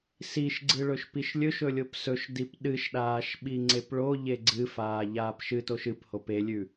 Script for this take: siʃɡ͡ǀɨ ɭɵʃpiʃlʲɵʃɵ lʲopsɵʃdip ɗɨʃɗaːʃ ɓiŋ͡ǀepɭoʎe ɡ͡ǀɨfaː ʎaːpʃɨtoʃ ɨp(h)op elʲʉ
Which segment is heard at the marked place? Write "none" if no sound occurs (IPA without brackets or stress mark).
h